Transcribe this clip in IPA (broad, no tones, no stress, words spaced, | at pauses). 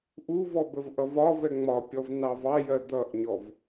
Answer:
ʔuvɔ bəvʔʌvɒvɛ ŋ͡mɒpʲɔv nɑvɑjɜ d̪ʌʔɲɔv